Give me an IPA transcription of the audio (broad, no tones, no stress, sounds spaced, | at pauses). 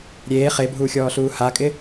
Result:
ɾʲ eː χ e bʱ uː xʲ ɔː ɬ uː h a kʼ ɪ